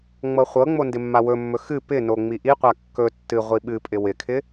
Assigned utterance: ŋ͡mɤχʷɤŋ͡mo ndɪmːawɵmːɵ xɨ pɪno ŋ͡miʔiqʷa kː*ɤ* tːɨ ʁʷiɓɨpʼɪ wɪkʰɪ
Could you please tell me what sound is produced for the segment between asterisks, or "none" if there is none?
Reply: ɵ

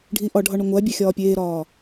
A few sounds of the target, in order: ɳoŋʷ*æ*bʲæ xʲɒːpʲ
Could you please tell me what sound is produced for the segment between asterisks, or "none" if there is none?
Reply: æ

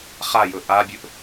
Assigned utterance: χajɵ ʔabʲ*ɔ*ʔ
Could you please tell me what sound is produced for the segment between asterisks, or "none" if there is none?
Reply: ɵ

